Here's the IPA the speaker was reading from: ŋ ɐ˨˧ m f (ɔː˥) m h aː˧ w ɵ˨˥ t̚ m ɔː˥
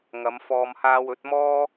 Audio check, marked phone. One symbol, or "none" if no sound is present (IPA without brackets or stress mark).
ɔː˧